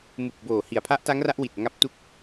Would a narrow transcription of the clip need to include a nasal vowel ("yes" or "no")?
no